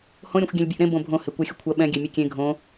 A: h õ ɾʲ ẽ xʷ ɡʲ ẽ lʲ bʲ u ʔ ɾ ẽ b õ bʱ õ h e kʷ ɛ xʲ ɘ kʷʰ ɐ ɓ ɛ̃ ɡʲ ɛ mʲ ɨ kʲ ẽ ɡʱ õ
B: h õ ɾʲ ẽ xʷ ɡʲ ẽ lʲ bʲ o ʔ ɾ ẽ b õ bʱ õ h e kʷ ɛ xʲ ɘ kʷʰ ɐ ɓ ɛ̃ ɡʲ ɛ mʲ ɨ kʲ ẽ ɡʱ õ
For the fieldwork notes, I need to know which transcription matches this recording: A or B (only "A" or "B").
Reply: A